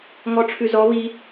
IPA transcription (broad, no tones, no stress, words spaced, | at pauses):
ŋɔʈ͡ʂʰʉzɔ βi